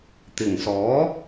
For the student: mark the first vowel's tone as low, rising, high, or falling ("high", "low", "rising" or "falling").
low